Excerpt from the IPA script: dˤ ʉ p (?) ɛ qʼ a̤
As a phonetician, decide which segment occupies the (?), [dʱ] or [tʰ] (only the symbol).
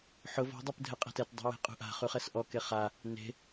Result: dʱ